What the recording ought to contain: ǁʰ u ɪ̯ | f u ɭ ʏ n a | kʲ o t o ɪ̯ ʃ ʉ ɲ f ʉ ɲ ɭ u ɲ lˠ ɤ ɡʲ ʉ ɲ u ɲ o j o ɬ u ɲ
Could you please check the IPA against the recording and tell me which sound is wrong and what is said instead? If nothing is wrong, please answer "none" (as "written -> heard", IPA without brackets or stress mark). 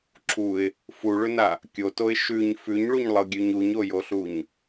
none